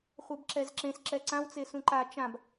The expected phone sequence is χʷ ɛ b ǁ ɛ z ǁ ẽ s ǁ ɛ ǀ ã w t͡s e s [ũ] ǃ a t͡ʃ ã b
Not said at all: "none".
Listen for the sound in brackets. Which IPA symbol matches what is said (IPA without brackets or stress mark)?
ũ